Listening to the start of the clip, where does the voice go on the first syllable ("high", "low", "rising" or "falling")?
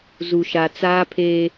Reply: low